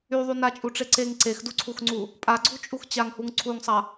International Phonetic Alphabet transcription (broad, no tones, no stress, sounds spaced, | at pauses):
y ðˤ y n a t͡ʃʼ u ʈ͡ʂ e ǀ e ŋ ǀ e x d u ǀʰ u x ŋ͡ǀ u | pʼ a ɡ͡ǀ u t͡ʃʼ u x t͡ɕ a ŋ h u ŋ ǀʰ u ŋ sˤ a